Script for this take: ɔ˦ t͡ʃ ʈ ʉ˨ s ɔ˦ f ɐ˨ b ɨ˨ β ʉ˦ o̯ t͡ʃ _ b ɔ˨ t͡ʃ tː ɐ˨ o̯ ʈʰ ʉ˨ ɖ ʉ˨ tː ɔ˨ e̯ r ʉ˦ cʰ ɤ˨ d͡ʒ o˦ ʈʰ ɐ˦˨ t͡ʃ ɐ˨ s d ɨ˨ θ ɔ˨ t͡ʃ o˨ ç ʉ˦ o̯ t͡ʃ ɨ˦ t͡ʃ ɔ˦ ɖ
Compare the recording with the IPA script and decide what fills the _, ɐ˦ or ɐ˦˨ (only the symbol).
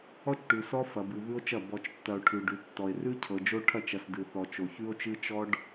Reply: ɐ˦˨